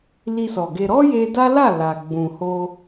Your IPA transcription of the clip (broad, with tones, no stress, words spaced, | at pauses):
li˧sɔ˨ɡe˧ ɾɔ˦je˧ da˦la˦˨ la˨ ɡ͡bũ˨ho˧